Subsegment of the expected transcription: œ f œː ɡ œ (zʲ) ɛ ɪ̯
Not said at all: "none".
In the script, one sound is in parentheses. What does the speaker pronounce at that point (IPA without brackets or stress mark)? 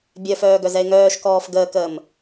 z